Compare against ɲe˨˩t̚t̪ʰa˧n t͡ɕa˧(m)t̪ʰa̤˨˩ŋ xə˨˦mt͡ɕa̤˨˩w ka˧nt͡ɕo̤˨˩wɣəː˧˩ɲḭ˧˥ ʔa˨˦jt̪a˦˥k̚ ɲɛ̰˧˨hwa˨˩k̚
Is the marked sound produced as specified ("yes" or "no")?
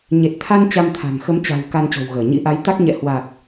yes